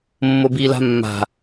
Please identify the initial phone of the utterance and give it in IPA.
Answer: mː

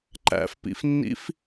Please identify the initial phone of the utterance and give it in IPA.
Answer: ǃ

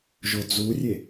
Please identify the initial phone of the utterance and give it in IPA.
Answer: ʒ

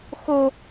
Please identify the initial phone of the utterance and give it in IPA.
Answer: x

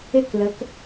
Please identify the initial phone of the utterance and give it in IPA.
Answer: ɪ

